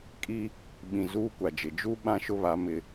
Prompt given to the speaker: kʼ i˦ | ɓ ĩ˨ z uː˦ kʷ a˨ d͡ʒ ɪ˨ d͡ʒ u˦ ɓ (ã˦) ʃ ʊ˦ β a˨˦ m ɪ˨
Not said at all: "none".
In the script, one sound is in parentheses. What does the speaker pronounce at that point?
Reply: ã˦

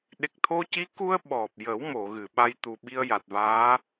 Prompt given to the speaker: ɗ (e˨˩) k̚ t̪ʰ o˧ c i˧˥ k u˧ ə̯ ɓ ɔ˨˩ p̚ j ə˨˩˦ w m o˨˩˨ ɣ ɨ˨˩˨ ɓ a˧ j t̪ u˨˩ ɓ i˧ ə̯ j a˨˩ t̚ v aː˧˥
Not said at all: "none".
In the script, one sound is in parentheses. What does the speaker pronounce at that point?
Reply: e˨˩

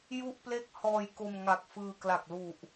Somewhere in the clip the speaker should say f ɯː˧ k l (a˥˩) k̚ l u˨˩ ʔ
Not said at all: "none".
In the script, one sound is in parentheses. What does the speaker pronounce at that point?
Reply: a˨˩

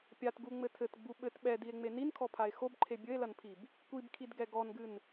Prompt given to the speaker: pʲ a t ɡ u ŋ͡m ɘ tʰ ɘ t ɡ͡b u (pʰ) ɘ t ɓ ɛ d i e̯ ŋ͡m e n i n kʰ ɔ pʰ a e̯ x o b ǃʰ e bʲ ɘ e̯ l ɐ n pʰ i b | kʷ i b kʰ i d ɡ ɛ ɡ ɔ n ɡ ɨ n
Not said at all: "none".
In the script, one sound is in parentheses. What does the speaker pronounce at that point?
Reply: ɓ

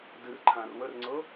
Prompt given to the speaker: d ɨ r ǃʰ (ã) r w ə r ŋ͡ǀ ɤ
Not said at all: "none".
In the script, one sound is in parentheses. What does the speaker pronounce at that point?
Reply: ã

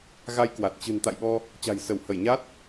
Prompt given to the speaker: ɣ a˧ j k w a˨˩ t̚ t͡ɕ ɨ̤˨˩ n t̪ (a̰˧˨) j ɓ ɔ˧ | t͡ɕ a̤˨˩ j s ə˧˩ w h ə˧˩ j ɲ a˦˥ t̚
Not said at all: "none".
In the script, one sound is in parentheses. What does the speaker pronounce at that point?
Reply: a̰˧˨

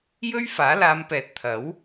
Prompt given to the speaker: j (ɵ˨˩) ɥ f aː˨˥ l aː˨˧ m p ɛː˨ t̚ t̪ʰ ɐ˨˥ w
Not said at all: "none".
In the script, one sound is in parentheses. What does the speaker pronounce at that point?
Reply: ɵ˥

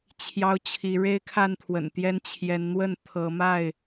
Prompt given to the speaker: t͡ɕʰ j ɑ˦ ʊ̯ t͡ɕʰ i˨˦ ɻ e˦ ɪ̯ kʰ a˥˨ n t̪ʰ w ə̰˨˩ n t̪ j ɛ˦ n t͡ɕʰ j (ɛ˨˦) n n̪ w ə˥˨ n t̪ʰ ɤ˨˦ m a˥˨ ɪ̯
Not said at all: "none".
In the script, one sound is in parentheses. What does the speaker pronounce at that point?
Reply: ɛ˨˦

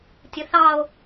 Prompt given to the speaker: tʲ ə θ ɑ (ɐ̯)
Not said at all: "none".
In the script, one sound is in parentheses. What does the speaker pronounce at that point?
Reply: o̯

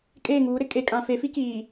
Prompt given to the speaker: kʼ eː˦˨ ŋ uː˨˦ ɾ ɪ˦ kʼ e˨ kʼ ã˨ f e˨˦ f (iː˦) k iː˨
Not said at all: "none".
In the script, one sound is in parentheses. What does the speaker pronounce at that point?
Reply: i˦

